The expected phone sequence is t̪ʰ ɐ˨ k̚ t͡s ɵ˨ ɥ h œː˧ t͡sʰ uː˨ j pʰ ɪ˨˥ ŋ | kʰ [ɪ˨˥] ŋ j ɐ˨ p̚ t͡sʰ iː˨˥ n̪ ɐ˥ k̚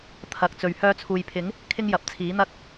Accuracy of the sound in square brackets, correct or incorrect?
incorrect